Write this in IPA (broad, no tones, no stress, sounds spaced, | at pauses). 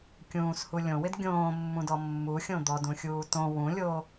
kʲ ũː s h u lʲ õ w ɪ d ɡʲ õː mː ũ d ɔ mː u xʲ õ d̪ ɔ d ũ xʲ uː t õ w ũ lʲ o